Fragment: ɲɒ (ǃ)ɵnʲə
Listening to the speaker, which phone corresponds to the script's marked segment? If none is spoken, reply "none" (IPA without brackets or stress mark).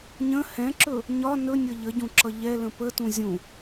n